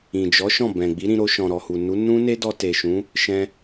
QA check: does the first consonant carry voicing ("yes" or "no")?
yes